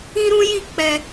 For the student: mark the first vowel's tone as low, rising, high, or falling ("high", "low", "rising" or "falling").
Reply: high